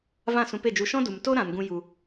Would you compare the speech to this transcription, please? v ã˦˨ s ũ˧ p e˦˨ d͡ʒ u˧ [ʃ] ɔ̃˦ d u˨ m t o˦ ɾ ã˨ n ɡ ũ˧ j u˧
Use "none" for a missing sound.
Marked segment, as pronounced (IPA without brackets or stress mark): ʃ